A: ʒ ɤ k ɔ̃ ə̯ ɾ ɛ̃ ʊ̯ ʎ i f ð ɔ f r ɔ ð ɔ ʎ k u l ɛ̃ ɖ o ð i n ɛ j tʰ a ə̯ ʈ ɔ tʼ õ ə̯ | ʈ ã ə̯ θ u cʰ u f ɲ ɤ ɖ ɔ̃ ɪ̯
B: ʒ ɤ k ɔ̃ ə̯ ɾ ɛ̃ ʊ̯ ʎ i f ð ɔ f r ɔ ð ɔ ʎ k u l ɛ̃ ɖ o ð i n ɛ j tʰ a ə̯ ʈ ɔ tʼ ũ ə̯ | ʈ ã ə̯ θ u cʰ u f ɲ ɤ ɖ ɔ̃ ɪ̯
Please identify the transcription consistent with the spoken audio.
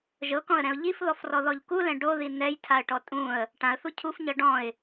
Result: B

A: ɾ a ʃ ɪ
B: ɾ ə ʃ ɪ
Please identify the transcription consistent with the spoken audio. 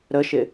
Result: B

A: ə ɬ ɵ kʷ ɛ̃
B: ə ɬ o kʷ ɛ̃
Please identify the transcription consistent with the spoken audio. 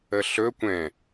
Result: A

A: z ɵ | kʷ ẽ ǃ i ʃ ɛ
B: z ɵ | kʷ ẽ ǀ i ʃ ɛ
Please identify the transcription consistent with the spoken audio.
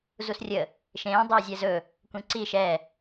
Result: B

